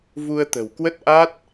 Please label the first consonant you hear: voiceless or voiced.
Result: voiced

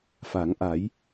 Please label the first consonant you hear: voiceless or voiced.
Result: voiceless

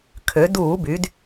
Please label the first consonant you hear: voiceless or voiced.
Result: voiceless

